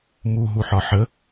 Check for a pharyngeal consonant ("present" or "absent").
present